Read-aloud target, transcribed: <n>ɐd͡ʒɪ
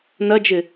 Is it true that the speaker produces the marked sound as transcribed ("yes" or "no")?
yes